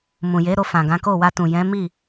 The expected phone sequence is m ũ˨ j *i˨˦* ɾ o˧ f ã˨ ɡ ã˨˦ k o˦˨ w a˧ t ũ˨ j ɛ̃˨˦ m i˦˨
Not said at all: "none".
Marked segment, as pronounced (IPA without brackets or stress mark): e˨˦